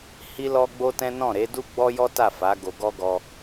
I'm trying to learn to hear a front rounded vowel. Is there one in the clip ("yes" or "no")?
no